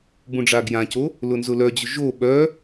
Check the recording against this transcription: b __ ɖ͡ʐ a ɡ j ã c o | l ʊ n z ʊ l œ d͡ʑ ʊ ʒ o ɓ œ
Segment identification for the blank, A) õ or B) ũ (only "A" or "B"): B